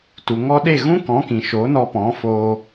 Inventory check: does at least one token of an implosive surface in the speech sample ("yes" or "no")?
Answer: yes